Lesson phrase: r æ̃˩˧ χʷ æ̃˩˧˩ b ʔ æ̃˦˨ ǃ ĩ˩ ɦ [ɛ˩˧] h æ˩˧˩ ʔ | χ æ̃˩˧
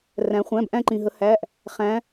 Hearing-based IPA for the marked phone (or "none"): ə˩˧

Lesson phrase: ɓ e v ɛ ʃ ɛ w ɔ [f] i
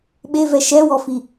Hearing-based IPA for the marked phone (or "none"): f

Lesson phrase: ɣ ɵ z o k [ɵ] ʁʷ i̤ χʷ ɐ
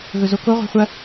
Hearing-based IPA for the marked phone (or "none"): o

